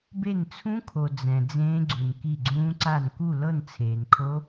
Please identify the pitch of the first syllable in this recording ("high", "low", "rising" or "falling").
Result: falling